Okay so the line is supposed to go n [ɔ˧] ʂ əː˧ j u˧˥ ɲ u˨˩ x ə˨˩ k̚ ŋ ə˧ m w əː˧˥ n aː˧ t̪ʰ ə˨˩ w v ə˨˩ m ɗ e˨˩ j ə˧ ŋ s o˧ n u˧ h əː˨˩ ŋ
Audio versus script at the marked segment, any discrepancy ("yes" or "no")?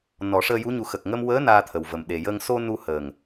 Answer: yes